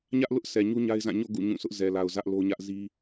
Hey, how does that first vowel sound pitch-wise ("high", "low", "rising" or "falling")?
high